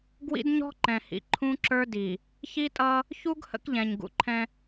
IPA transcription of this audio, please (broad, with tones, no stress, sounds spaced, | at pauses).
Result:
ɡ w ḭ˦ d ɲ ɔ̤˦ ǃ ɛ̃˨ h ḭ˨ ǃʰ ũ˦ ǁ ə˞˦ d i˨ | ç i˦ tʼ ʌ˦ | ç u˦ ɡ h ə̰˦ k ʎ ɛ̃˨ ɲ ɡ ṵ˨ ǃʰ ɛ̃˦